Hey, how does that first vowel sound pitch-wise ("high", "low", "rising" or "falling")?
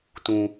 low